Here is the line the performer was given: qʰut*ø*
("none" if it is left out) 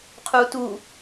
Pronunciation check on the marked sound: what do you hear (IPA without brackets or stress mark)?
u